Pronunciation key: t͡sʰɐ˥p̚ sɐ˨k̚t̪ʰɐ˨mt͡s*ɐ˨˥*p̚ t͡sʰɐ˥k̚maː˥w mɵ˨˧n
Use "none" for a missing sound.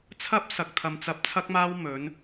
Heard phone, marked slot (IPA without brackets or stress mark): ɐ˨˥